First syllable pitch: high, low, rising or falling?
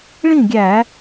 falling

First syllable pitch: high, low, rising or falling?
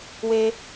high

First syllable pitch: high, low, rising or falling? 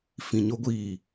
low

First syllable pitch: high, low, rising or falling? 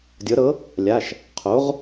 rising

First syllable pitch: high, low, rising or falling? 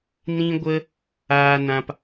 high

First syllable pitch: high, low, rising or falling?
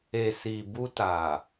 low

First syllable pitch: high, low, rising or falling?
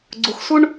low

